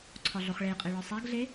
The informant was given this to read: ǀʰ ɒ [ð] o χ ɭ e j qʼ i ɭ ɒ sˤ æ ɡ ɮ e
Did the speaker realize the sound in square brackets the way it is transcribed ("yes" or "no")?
no